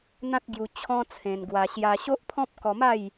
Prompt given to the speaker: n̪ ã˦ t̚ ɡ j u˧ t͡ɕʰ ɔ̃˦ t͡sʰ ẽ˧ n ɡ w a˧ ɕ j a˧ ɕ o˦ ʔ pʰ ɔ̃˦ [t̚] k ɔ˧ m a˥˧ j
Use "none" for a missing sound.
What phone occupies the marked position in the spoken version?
p̚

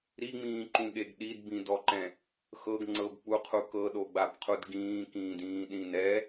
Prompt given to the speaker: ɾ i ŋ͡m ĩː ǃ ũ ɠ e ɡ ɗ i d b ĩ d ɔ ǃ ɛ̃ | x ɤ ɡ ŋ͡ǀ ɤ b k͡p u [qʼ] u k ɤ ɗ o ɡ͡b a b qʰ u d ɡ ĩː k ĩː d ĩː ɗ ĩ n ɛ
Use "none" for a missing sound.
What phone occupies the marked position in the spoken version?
qʰ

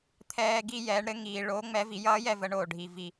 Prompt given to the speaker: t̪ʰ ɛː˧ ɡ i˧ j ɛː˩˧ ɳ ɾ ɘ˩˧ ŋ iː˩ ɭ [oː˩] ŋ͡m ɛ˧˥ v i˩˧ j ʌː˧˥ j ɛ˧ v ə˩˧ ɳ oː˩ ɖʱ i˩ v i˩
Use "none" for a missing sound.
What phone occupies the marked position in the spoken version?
oː˧˥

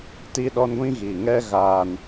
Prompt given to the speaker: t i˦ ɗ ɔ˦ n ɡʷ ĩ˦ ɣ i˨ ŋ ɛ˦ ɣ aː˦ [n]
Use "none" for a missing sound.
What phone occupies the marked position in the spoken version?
n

